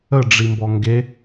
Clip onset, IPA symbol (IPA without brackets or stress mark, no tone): ə